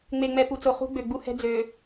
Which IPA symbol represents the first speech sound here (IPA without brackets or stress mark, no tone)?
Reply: ŋ͡m